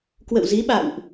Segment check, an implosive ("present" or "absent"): present